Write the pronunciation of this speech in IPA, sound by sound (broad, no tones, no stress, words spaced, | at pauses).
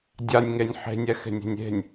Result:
dʲanʲŋenʲ ħe̤nʲɛxe̤nʲe̤nʲ e̤nʲ